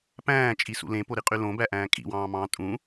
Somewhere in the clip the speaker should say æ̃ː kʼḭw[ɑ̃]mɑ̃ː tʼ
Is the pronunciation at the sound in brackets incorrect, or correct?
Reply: incorrect